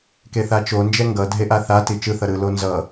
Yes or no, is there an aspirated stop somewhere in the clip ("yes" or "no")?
no